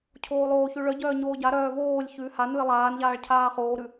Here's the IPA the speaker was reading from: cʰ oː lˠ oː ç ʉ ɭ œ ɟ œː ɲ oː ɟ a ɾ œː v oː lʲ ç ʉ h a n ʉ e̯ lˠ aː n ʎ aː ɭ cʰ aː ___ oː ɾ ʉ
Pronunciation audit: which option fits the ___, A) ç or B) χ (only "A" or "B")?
B